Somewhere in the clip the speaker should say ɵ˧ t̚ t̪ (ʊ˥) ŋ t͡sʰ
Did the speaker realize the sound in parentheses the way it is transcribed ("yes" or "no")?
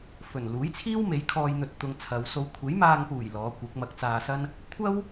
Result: no